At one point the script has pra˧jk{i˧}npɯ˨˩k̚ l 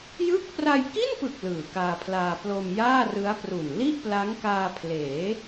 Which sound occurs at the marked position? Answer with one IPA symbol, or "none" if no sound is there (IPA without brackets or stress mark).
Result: i˥˩